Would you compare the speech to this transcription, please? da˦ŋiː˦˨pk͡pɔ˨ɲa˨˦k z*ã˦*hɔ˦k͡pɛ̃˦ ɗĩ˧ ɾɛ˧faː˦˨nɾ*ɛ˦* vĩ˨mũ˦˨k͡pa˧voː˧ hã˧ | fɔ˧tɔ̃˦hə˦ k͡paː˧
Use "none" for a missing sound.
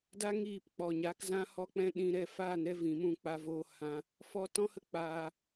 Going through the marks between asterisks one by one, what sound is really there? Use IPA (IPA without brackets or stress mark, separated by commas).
ã˦, ɛ˦